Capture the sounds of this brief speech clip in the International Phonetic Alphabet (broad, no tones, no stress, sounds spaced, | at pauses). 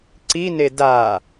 ǀ i n e d a